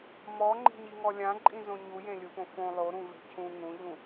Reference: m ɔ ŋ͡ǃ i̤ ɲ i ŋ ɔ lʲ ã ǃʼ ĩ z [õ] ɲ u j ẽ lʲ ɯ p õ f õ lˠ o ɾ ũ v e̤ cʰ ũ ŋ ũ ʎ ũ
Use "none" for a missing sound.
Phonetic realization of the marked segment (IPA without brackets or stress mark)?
õ